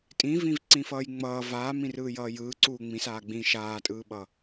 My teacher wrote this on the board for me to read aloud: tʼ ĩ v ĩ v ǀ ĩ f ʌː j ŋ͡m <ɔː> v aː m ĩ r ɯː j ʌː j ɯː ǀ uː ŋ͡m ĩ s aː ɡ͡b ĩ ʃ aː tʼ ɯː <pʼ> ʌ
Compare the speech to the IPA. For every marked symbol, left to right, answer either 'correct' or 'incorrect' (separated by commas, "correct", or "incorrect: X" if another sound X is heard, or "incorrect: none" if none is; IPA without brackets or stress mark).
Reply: incorrect: ʌː, incorrect: ɓ